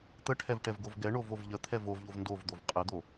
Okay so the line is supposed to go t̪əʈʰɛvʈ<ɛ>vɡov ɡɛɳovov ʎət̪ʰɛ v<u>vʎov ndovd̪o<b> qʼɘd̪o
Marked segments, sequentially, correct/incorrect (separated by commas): correct, incorrect, incorrect